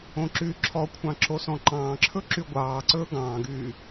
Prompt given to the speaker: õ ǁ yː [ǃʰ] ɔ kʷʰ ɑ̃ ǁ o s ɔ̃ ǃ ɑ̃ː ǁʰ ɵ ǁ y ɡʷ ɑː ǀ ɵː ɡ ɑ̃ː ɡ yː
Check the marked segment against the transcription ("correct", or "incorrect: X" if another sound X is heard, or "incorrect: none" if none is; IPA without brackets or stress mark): incorrect: ǁʰ